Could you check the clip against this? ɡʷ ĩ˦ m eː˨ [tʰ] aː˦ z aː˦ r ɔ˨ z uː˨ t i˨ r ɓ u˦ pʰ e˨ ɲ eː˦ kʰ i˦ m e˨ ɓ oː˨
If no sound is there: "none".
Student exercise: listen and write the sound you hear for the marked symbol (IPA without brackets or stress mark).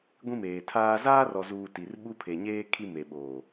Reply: tʰ